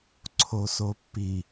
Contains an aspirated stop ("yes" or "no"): yes